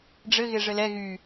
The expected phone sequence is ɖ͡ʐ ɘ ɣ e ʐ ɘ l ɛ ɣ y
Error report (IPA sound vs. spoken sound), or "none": none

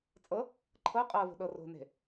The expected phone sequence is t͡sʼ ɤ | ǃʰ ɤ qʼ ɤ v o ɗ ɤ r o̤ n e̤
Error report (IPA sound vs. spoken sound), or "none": o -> o̤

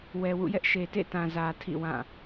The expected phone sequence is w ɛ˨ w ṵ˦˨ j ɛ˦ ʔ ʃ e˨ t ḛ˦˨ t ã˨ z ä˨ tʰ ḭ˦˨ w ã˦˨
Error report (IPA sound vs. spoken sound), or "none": none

